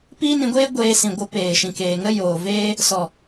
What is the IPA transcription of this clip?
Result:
p iː˦ n ĩ˧ ɡʷ eː˦ ɡʷ eː˧ s ĩ˨ ɡʷ ə˨˦ p eː˨ ʃ ĩ˨ k eː˨ ŋ ə˦ j oː˨ v eː˦ | s ɔ˨

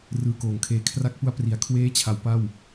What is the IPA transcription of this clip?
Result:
r ɯː˨˩ k oː˩˦ ŋ kʰ eː˨˩ kʰ r a˦˥ k̚ p u˦˥ a̯ p r i˩˦ a̯ kʰ w eː˦˥ t͡ɕʰ a˩˦ w p a˥˩ w

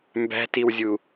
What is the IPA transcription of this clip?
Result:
m b æ̤ t i w zʲ u

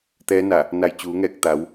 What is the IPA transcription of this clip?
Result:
t̪ ɛː˧˥ n a˧˩ | n a˧˩ j t͡ɕ uː˩˧ ŋ ɛː˧˩ k̚ t̪ a˩˧ w

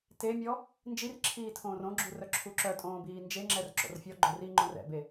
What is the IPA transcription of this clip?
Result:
t e mʲ ɔ | n d͡ʒ i r ǁʰ iː tʰ õː r õ ɡ͡ǁ u r œ ǁʰ u ǁ œ tʼ õː b iː n d͡ʒ e ŋ͡ǁ ɛ r ǁ o̰ r fʲ ɔ ɡ͡ǃ o r i ŋ͡ǃ õ r ɛ̰ b e

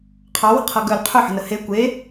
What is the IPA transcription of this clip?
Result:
qʰ ɑ w ə̤ qʰ ɤ ɡ œ l qʰ ɵ ħ ə̤ n ə h e kʷ e

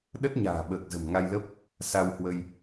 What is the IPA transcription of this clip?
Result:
ɗ ə˦˥ t̚ ɲ a̤ː˨˩ ɓ əː˨˩ k̚ z ə̤˨˩ m ŋ a˧ j l ə˦˥ p̚ | s a˧ w h w ə˧ j

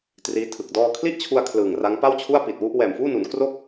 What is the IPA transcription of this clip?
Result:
t r iː˦˥ tʰ ɯ˨˩ k̚ d ɔː˧ kʰ l i˥˩ ʔ t͡ɕʰ u˧ a̯ kʰ l ɯː˨˩ ŋ r a˦˥ ŋ p a˥˩ w t͡ɕʰ u˥˩ a̯ p i˨˩ t̚ w u˥˩ ʔ w ɛː˨˩ m f uː˥˩ n u˩˦ n k r o˥˩ k̚

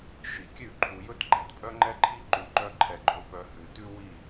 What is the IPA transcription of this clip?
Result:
ʃ i˨ kʲ ʉ˦˨ ǃʰ u˨ j ɵ˦ t ɡ͡ǃ æ˨ t pʼ œ˦ ŋ͡ǃ ɛ˦ ǃʰ i˦ ǃ ʉ˧ ǃ œ˦ ǃʰ ɛ˧ ɡ͡ǃ ɵ˧ p œ˧ h ʉ˨ t ʉ˦ w i˦˨

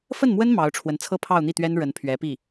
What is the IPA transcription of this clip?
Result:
f ə˥˩ n m w ə˥ n m ɑ˧˥ ʊ̯ ʈ͡ʂʰ w ə˧˥ n t͡sʰ ɤ˥ pʰ ɑ˥˧ ʊ̯ n̪ i˥˩ t̪ ɥ ɛ˥ n ɻ ə˧˥ n pʰ ɥ ɛ˧˥ p i˥˩

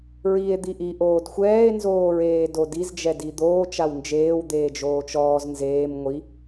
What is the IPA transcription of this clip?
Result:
ɹ i e̯ d̪ i ʔ i ʔ oː d xʷ ɛː e̯ n z oː ɹ eː d o d i z d͡ʒ ɛ d i d̪ oː t͡ʃ a w n d͡ʒ eː w d̪ eː d͡ʒ oː t͡ʃ ɔː z n z eː m ŋʷ i

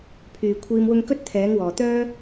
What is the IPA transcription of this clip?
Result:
pʰ yː˨˩ kʷʰ iː˨ m w ʊ˧ ŋ k ɵ˥ t̚ t̪ʰ ɛː˨˥ ŋ w ɔː˨˩ t̪ œː˥

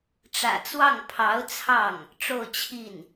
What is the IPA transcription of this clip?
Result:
ʈ͡ʂ ä̰˨˩ t͡s w ɑ˥˩ ŋ pʰ ɑ˧˥ ʊ̯ t͡sʰ ɑ˥˩ ŋ | ʈ͡ʂ o˥˧ ʊ̯ t͡ɕʰ i˥˩ n

